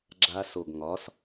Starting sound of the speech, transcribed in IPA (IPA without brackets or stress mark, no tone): ɡ͡ǁ